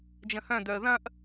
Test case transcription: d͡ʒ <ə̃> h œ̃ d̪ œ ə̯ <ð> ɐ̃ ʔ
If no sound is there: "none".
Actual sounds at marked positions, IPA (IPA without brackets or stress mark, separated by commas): ə̃, ð